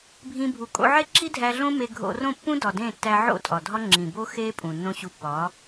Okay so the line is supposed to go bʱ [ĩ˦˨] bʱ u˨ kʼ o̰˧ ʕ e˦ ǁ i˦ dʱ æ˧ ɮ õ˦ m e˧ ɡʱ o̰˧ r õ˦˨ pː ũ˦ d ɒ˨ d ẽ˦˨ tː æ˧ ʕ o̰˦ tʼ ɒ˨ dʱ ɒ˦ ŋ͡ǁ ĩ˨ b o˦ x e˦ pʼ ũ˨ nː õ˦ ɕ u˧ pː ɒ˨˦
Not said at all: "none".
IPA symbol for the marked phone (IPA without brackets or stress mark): ĩ˧